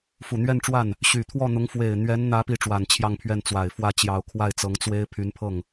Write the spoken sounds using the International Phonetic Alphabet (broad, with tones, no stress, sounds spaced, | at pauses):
f u˨˩ n̪ ɥ ɛ˥˧ n ʈ͡ʂ w a˥˩ n | ɕ y˨˩ t̪ʰ w ɔ˥˩ n̪ ʊ˧˥ ŋ f w e˨˩ ɪ̯ n̪ ɥ ɛ˧˥ n n̪ ä˧˥ p i˥ ʈ͡ʂ w a˨˩ n t͡ɕʰ j ɑ˥˧ ŋ pʰ ɥ ɛ˥˩ n t͡s w a˨˩ ɪ̯ f w ä˥˩ t͡ɕ j ɑ˨˩ ʊ̯ kʰ w a˥˩ ɪ̯ t͡s ɤ˧˥ ŋ t͡s w e˥ ɪ̯ pʰ y˧˥ n pʰ ɤ˥˩ ŋ